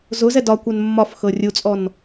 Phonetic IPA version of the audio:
z ʊ z ɛ d ɒ kʷ ɛ n mː ɒ f x ɤ rʲ u t͡sʼ ɔ n

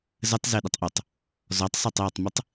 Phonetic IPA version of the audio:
z ə tˤ z e ɗ ə tˤ ʔ u tˤ | z ɔ tˤ sˤ a tˤ j ɔ tˤ m ɯ tˤ

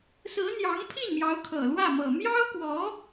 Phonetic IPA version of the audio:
s ɹ̩˧˥ n̪ j ɑ˧˥ ŋ pʰ i˥˩ n m j ɑ˧˥ ʊ̯ kʰ ɤ˨˩ l w ä˥˩ m ɤ˨˩ m j ɑ˥ ʊ̯ k w ɔ˧˥

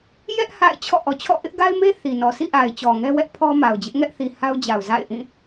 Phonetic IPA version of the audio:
j ɛ˦ ʔ h a̰˦˨ ɪ̯ t͡ɕʰ ɔ̰˦˨ ʔ ɔ˨ t͡ɕʰ ɔ̰˦˨ ʔ ɪ˦ ʔ ɡ a˦ ɪ̯ m e˦ θ i˨ n ɔ˨ sʰ ḭ˦˨ ʔ a˨ ɪ̯ t͡ɕ ɔ˨ ŋ ɛ˦ w ɛ˦ ʔ pʰ ɔ˦ m a˨ ʊ̯ d͡ʑ ɪ˦ ʔ ŋ ɛ˦ ʔ θ i˨ h a˦ ʊ̯ d͡ʑ a˨ ʊ̯ z a̰˦˨ ɪ̯ ʔ ĩ˦˨

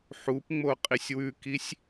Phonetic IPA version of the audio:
ħ u p ŋ͡m o qʼ i sʲ w ʉ k i sʲ

